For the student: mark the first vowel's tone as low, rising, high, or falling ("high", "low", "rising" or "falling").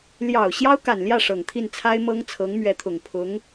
low